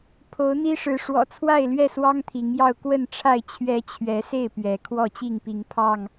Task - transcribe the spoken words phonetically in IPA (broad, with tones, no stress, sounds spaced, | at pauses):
pʰ o˨˦ ʊ̯ n̪ i˦ ʂ ɻ̩˨˦ ʂ w ɔ̰˨˩ t͡sʰ w a˥˨ ɪ̯ l ɥ ɛ˥˨ s w ɑ˦ ŋ t̪ʰ i˨˦ ŋ j ɑ˥˨ ʊ̯ k w ə˥˨ n ʈ͡ʂʰ a˥˨ ɪ̯ t͡ɕʰ ɥ ɛ˦ t͡ɕʰ ɥ ɛ˨˦ s e˥˨ ɪ̯ p ɥ ɛ˨˦ kʰ w ɔ˥˨ t͡ɕ i˥˨ ŋ p i˨˦ ŋ pʰ ɑ˥˨ ŋ